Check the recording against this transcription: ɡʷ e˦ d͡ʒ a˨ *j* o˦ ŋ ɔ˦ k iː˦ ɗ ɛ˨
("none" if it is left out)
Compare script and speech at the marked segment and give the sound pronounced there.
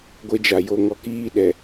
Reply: j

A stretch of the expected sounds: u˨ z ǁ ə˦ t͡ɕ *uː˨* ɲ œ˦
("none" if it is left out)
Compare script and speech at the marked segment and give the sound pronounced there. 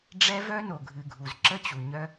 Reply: u˨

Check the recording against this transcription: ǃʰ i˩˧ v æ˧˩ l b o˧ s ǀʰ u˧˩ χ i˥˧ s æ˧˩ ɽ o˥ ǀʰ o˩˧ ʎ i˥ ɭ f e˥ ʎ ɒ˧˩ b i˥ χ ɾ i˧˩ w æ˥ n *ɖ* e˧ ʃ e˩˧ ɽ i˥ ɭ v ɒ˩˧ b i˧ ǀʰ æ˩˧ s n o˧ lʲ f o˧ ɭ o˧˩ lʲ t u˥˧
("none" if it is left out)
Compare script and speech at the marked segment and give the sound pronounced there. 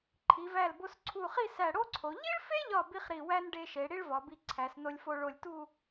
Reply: ɖ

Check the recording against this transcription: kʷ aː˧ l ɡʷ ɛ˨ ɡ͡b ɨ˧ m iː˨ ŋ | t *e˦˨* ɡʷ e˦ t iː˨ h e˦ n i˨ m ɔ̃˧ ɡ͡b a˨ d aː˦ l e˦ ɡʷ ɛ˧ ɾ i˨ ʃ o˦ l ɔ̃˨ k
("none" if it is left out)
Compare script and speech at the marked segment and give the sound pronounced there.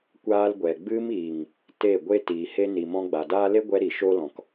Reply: e˦˨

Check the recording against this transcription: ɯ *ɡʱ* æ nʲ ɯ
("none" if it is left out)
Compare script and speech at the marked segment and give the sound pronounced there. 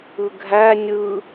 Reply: ɡʱ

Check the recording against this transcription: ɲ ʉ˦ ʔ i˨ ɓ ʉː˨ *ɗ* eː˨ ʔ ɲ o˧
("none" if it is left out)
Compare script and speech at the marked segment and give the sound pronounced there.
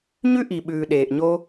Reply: ɗ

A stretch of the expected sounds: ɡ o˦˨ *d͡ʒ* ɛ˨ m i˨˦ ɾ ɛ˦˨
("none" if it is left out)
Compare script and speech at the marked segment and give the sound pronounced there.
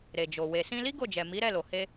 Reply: d͡ʒ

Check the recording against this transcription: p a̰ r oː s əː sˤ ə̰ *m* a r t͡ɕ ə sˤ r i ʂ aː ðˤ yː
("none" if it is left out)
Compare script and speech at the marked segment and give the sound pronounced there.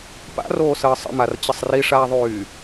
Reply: m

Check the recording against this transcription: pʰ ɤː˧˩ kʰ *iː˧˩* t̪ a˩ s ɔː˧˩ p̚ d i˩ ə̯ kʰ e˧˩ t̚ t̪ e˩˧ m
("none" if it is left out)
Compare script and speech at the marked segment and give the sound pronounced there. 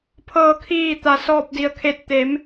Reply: iː˧˩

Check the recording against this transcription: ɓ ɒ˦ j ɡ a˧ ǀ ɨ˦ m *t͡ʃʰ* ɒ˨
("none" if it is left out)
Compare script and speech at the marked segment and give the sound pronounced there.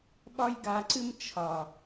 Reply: t͡ʃʰ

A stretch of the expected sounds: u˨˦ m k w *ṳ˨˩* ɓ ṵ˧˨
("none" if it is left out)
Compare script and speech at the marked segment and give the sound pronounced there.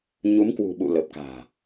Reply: ṳ˨˩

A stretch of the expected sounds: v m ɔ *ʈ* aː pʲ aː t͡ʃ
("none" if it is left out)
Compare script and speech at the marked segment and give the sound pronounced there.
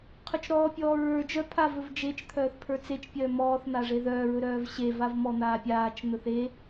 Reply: n̪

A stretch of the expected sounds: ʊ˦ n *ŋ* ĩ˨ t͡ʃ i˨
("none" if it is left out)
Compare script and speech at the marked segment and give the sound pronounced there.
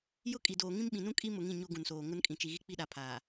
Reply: kʼ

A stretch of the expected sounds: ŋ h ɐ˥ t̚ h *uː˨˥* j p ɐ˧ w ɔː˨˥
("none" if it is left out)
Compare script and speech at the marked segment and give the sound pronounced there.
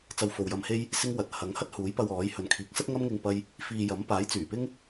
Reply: uː˨˥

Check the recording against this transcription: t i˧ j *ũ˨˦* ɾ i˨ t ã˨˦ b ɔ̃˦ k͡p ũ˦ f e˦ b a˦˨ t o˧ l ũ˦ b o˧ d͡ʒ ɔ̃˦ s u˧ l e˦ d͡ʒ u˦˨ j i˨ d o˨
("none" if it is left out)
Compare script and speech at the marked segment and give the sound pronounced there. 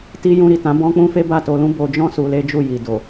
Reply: ũ˧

